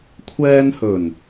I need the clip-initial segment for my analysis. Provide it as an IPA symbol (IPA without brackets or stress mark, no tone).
kʷʰ